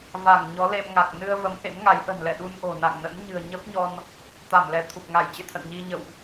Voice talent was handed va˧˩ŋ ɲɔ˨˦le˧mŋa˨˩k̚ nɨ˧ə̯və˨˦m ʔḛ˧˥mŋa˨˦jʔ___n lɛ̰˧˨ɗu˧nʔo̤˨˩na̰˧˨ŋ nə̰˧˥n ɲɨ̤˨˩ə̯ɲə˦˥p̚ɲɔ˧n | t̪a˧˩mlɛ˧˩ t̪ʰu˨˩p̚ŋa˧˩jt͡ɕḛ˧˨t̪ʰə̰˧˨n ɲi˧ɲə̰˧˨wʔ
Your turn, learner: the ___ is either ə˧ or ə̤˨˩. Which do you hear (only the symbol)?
ə̤˨˩